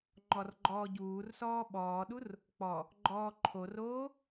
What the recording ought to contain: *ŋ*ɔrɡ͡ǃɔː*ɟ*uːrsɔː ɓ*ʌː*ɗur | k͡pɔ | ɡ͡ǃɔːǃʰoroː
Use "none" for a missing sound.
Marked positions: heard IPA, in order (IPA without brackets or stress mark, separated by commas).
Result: ŋ͡ǃ, ɟ, ɔː